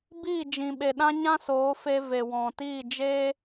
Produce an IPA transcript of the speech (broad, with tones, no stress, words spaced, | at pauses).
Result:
biː˦˨d͡ʒĩ˨ ɓe˨ɗã˦ ɲã˦soː˨˦fe˧ ve˨wɔ̃˨ tiː˦˨d͡ʒeː˦